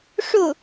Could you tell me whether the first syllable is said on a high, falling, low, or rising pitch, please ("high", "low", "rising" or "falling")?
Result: falling